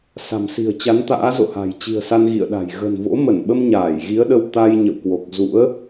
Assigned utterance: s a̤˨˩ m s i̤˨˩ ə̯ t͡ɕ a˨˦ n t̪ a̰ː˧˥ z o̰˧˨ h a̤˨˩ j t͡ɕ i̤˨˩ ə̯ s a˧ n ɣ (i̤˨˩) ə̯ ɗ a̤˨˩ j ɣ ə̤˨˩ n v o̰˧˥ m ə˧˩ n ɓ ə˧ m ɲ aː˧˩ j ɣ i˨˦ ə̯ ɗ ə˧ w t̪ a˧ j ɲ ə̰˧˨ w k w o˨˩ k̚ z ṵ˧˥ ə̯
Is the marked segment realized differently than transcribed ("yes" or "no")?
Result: yes